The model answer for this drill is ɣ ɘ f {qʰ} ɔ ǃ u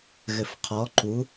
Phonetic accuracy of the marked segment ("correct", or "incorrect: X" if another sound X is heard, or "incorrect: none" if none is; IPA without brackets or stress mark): correct